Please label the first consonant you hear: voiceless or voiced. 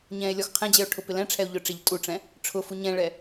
voiced